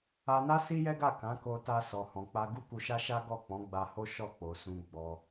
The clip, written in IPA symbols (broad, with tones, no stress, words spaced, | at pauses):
a˧na˦ si˦jɛ˦ɡa˦˨ kã˨˦ko˧ta˧ sɔ˨hɔ̃˨k͡pa˧ ɡu˦ku˧ʃa˦ ʃa˦ ɡɔ˦˨k͡pɔ̃˨˦ɡ͡ba˧ho˦ ʃɔ˦˨k͡po˨sũ˧ ɡ͡bɔ˧